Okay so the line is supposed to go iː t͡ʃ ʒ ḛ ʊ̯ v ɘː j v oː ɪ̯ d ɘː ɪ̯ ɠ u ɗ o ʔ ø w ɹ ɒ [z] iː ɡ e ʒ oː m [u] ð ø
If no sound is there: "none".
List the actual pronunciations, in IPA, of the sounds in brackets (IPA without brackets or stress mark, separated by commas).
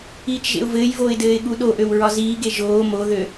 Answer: z, o